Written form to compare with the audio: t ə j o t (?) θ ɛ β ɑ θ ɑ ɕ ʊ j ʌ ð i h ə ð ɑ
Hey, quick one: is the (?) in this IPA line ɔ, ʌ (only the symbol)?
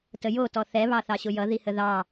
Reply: ɔ